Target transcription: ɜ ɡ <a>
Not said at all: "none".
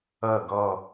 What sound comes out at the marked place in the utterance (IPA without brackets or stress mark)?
ʌ